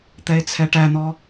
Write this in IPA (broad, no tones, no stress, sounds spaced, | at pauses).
t̪ ɛ e̯ t͡sʰ ɛ ʈ æ n̪ ɔ